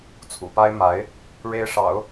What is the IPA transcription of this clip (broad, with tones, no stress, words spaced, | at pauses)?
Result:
t͡sʰṵ˨˩pa˥ɪ̯ ma˧˥ɪ̯ | ɻe˧˥ɪ̯ʂɑ̰˨˩˦ʊ̯